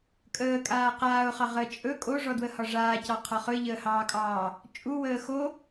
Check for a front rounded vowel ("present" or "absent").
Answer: absent